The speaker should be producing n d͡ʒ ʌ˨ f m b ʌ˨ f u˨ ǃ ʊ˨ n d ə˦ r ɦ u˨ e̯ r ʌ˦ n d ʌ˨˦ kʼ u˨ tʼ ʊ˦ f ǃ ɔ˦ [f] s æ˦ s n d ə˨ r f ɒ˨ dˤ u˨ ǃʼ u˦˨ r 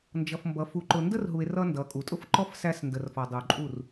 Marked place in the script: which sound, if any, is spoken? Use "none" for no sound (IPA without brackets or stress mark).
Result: f